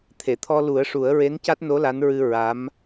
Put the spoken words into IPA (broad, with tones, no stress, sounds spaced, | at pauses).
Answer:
t̪ʰ e˨˩˨ t̪ʰ ɔ˧ l u˨˩˦ ə̯ ʂ u˨˩˦ ə̯ ɹ e˧˥ n c a˦˥ t̚ n o˧˥ l a˧˥ n ɹ ɨ˧ ɹ a˧˥ m